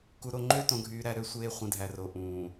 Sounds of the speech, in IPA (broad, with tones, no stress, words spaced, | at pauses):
ku˨ɾo˨ŋ͡ǃø˦ tõ˨ɡʱyː˨ɾæ˨ɾø˦˨ sʷeː˦χʷĩ˨dʱæ˨ro˨ ʔũː˨